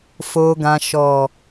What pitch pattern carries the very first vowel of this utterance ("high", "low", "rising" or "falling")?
low